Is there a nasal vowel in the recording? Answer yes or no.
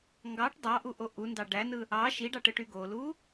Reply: no